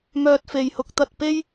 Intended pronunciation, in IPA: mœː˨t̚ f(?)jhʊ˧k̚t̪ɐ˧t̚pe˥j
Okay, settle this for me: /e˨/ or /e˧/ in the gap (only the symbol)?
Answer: e˨